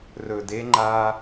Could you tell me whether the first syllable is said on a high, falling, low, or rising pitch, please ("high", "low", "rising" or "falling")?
low